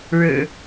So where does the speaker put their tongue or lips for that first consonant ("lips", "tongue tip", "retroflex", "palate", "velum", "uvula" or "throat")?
retroflex